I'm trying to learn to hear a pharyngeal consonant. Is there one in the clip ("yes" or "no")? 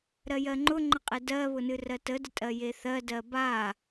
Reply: no